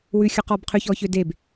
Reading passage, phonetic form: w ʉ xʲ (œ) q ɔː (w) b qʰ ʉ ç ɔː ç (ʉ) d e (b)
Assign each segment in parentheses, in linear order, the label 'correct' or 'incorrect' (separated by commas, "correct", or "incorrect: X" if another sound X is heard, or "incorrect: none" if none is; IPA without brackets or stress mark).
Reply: correct, incorrect: none, incorrect: ø, correct